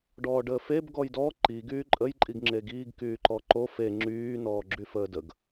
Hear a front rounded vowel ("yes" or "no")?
yes